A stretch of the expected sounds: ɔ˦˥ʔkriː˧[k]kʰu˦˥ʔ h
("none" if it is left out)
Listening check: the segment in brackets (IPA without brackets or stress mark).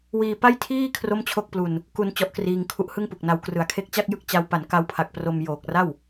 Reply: ŋ